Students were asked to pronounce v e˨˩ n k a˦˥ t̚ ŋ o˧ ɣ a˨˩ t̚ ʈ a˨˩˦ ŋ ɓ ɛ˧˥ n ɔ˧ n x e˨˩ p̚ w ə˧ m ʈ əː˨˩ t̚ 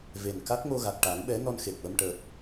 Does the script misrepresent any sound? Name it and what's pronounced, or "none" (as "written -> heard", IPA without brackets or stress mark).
none